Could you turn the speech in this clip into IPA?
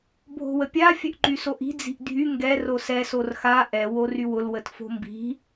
bʱo̤wəpʲa fʲœʔǃysoʔi̤ d͡zi̤ʔdʱy ŋɡɛr osɛ sorxa ʔɛ worywʊl wətfo̤mbi̤

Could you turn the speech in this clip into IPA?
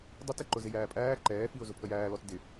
dˤʊtɪ ǃʊzɪjæːpʼæː ǃɛːfiʊ̯ zʊpʰəjæːlɔt dɪ

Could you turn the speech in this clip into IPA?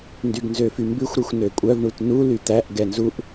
ndyɡnzøfymbʉxʷ ɾyxʷnøkʷʼœv ɳutnu lyt̪æʔ ɡɛnzuʔ

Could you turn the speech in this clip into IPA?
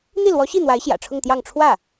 n̪i˥˩lwɔ˧˥ɕi˥˩n̪wa˧˥ɪ̯ ɕjä̰˨˩ʈ͡ʂʰʊ˥˧ŋt̪jɑ˥˧ŋ ʈ͡ʂʰwä˥˩

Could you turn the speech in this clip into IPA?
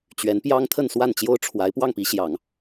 t͡ɕɥɛ˧˥npjɑ˥ŋ t̪ʰə˥˧nswa˥˩nt͡ɕjo˥ʊ̯ʈ͡ʂʰwa˧˥ɪ̯ pwɑ˥˩ŋpi˧˥ɕjɑ˨˩˦ŋ

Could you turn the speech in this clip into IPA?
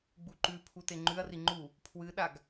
ɡ͡buǃʉpʰu teŋ͡ǃʉɐ̯ri ŋ͡ǃu | pʰwɨɗaɡ

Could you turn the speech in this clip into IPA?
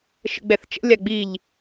ʃə̰ɡ͡bɛθt͡ʃə̰ lʲaɡ͡biʎ

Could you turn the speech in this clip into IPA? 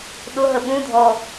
ɗʊ ɦəɓũdʱɔ

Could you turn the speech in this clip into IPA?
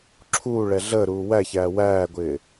ǁʰuːɭɛ ɮəːɾuː wæçæː wæːɡʷɪː

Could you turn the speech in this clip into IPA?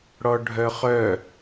ɽɔɖʱœχœ

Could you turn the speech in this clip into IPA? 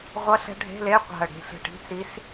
ʁʷʌ˧˥˧ɬɛ̤˧˥ɖʱe̤˧˥˧le˧˥˧ qʷa̤˧˩ə̯ɽe̤˧˩ɬe̤˧˩ ʈi̤˧˥˧t͡si˧˥s

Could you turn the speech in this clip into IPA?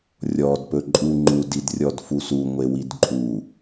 rʲɔd pɵǃʼu ŋ͡ǃud idrʲɔdfusu ŋʷewidǃʼu

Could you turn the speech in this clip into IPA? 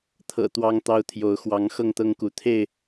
t̪ʰɤ̰˨˩ t̪wɑ˦ŋt̪ɑ˦ʊ̯t̪ʰjo˨˦ʊ̯ xwɑ˨˦ŋxɤ˥˨ŋt̪ɤ˦ŋku˨˦ t̪ʰe˥˨ɪ̯

